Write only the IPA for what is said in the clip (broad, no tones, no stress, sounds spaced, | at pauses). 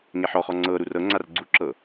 ŋ e ħ ɔ χ ɔ ŋ͡ǀ ɤ ɾ u r ɤ ŋ͡ǀ a r ɡ͡ǀ u ǁ ɤ